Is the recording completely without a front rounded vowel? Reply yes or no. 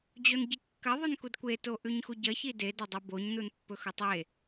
yes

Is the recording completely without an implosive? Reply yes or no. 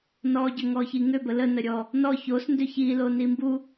yes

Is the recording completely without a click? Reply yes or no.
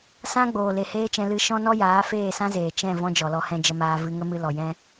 yes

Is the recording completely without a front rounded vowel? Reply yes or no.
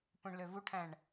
no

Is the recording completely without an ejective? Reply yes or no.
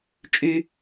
no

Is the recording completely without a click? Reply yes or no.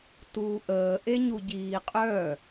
yes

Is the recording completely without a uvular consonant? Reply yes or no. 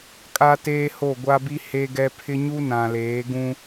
yes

